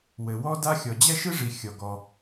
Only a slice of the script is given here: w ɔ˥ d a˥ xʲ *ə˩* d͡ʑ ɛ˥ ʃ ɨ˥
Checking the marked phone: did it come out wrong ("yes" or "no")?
yes